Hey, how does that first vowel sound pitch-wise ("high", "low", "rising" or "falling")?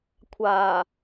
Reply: low